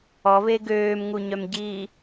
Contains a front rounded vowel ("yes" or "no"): yes